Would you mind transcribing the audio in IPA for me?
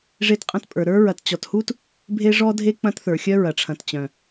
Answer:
ʐe˦tqʼɐ̃˦tpʼə˞˨ɾə˞˥ ɹɐ˨tt͡ɕɔ˨thu˥t | bʱe˥ʐɔ˥dʱe˥ k͡pɐ̃˥tθə˞˩ xʲœ˥ɹɐ˩ʈ͡ʂʰɐ̃˨tt͡ɕœ̃˩

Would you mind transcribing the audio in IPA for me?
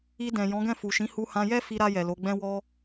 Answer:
i˧dɛ̃˨ jɔ̃˨˦ɡɛ̃˦˨fu˨ʃĩ˨˦ hu˧hã˧jɛ˦ fi˧ɾa˧ jɛ˨lo˨˦ɡ͡bɛ̃˦ wɔ˧

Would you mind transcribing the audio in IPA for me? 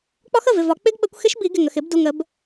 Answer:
k͡pɒ˦˥xə˩˧˩vɪ˩˧˩vɒ˨˩˦ k͡pɪ˦˥ɡɓə˨˩˦kʷxɪ˦˥ʃbi˨˩˦ ɡɪ˩˧˩ŋə˩˧˩x ɪ˨˩˦bdu˩˧˩ŋə˨˩˦b

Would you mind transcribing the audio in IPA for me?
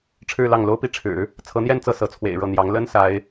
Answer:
ʈ͡ʂʰɻ̩˥˧lɑ˥˩ŋ lo˥ʊ̯ pi˥˩ʈ͡ʂʰɻ̩˨˩˦ | t͡sʰɤ˧˥n̪jɛ˥˧nt͡sɤ˥˩ sɤ˧˥t͡sʰwḛ˨˩ɪ̯ ɻɤ˥˩n̪jɑ˧˥ŋ lə˥n sa˧˥ɪ̯

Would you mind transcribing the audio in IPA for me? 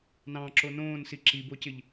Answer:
nɑ̃ǁo nõːnsi ǁibocɪʎ

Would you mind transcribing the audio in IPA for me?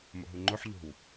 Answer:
mo̰ɦuŋ͡ǃoħ ʎo̤w

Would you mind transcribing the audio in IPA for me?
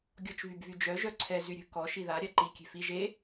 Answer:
ɡʲɔt͡ʃvybvyd͡ʒœ ʒœǀʰɛ zyɾʲə̤ kɔ ʃiða ɾʲaǃi kʲe̤fi ʒe

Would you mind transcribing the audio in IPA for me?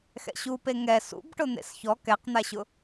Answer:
xɛ̰ɕupe ŋɛ sṵbʈʊ n̪ḛsçɔ kɛqn̪aɕʊ

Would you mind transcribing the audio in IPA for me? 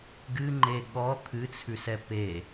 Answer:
ɡɨŋ͡ǃe ɠɔ t̪ʰɨt͡sʰʉsɛ pe

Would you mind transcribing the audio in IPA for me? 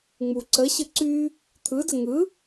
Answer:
ŋ͡mu ǀə ɕɯǀy | t̪ʰɯdə ŋɯ

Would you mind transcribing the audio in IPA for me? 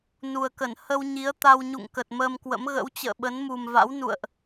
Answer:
nu˨˩ə̯kə˧˩n hə˧wɲi˨˦ə̯ t̪a˧w ɲṵ˧˨ŋkə˨˩t̚ məː˧mkwə̰˧˥m ɣə̰˧˥w t͡ɕə̰ː˧˨ɓə˨˦nmu˨˩mva̰˧˥w nṵ˧˨ə̯ʔ

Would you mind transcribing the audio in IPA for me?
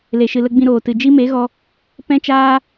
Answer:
le˨ʃɨ˨lə˧ ɡ͡bĩ˧ɾoː˨tɨ˨ d͡ʒi˦me˨˦ɣɔ˧ | pɛ̃˦t͡ʃaː˦

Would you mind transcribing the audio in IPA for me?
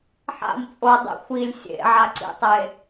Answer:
ħa̰m t͡sʼodˤḛ xʷilʲ sʲḛʕaǀḭtˤe

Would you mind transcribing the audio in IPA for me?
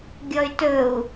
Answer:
ɡʲɔy̯tɵu̯

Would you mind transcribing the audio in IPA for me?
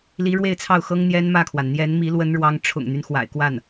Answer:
li˧˥ɻwe˥˧ɪ̯t͡sʰɑ˥˩ʊ̯xɤ˥ŋ n̪jɛ˥nmä˥˩kʰwa˩n n̪jɛ˧˥nmi˧˥ lwə˥nɻwɑ˥ŋ ʈ͡ʂʰʊ̰˨˩ŋn̪y˦n xwa̰˨˩ɪ̯kwa˥˩n

